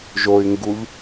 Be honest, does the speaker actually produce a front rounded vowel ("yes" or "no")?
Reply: yes